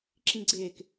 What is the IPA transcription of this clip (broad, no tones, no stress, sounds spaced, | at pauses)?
ǁ ĩ ɡ͡ǀ ɪː k